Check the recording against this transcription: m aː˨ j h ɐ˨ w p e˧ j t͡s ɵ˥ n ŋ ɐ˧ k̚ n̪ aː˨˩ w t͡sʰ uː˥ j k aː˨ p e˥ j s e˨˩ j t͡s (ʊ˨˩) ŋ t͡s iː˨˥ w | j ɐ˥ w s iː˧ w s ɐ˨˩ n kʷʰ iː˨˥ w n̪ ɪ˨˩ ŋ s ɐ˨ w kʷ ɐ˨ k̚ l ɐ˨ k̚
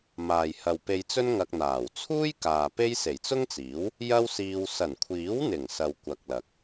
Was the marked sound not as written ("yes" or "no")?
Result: yes